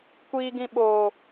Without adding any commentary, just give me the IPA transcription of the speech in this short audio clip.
kʷ iː˨ ɡ ĩ˨ ɓ oː˨

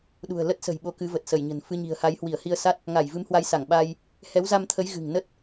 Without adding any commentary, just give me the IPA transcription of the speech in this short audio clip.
ɗ ṳ˨˩ ə̯ l ə˦˥ t̚ s ə̤˨˩ j ɓ o˨˦ k ɨ˨˦ v ə˨˩ t̚ s ə˧˩ j ɲ ə̤˨˩ n f ɨ˧ ɲ i̤˨˩ ə̯ h a˨˦ j h w i˧˩ ə̯ h i˧ ə̯ s a˦˥ t̚ | ŋ a˧˩ j v ɨ˨˦ m h w a˨˦ j s a˧˩ ŋ ɓ a˧ j | h ɛ˨˦ w z a˧ m t̪ʰ ə˨˦ j ɣ ɨ̤˨˩ ŋ n ə˦˥ t̚

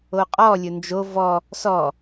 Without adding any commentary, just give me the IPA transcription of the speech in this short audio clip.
o qʼ ɔ lʲ ɵ n d͡ʒ o v ɔ | s ɔ

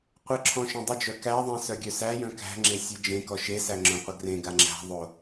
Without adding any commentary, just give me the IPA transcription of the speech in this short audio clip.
qʷ ə ǁʰ ɔ̃ ʃ œ̃ dˤ ə d͡ʒ œ k æ ðˤ ẽ s œ ɡʲ œ s æ j œ̃ k æ̤ ŋ͡ǁ e sʲ ɯ d͡ʒ ẽ k ɔ ʃ e s æ ŋ͡ǁ œ̃ qʷ ə ɡ r ẽ ɡ a ŋ͡ǁ æ̤ ðˤ o

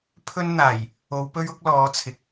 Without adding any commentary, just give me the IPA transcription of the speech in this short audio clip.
pʰ ɵ˥ n n̪ aː˨˩ j | o˨˧ w p ɵ˥ ɥ ʊ˥ k̚ l ɔː˨˧ t͡sʰ ɪ˨˥ k̚

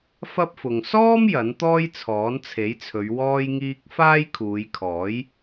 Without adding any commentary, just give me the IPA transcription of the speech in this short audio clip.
f ɐ˥ p̚ f ʊ˨ ŋ s ɔː˥ m j ɐ˨˥ n t̪ ɔː˥ j t͡sʰ ɔː˨˥ n t͡sʰ e˨˥ j t͡sʰ ɵ˨˧ ɥ w ɔː˧ j ŋ iː˧ k̚ f aː˥ j kʰ uː˨˧ j kʰ ɔː˨˥ j

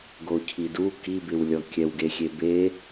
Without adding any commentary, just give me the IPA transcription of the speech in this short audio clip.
ɡ o cʰ i d u k i b ɪ w lʲ ɔ kʲ ɛ w ɡ e xʲ e b e

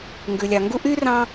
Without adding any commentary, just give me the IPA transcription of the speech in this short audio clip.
ŋ ɡ ʉ˩ lʲ ɑ˩ ŋ ɡ u˥ ʔ y˥ r ɑ̃˦

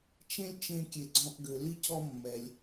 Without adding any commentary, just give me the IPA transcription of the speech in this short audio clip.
t͡ʃ ẽ˥ lʲ t͡ʃ ẽ˥ kʲ e˧ ɡ͡ǀ ɔ̃˥ ʔ ɡ ø˧ l i˥ c ɔ˥ mː ɛ˧ lʲ

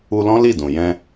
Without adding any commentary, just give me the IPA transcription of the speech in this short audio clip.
u˧ l ɔ̃˦ l i˦˨ d ũ˨ j ɛ̃˧

